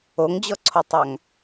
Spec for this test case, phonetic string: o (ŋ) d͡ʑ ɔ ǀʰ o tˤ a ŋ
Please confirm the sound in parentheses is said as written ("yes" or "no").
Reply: yes